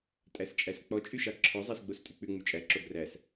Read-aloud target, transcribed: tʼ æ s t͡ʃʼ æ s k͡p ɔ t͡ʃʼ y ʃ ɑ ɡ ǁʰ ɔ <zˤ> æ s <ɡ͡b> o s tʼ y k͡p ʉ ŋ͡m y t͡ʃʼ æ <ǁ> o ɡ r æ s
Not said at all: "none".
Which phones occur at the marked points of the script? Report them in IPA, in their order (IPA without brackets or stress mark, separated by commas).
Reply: zˤ, ɡ͡b, ǁ